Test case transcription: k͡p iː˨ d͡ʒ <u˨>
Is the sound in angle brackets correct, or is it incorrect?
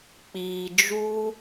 incorrect